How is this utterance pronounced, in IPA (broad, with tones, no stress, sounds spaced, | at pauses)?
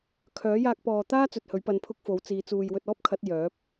kʰ œː˨˥ j aː˧ k̚ p ɔː˨ t̪ aː˥ t͡s ɵ˧ t̚ h ɵ˨˥ ɥ p ɐ˧ n pʰ ʊ˥ k̚ f o˨˥ w t͡s iː˨˧ t͡s uː˨ j w ɵ˧ t̚ ɔː˥ p̚ kʰ ɐ˨˥ t̚ j œː˨˥ p̚